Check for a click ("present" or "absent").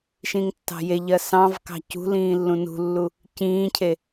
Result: absent